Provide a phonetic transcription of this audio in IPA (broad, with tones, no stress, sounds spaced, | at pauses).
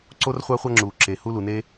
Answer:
ǀ o˥ r χʷ a˥ χʷ a˥ ŋ͡ǁ uː˩ ǁ e˩ h u˥ l u˩ n e˥